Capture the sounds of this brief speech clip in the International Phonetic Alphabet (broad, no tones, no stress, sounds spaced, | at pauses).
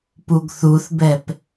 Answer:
p u ɡ θ u θ b ɛ p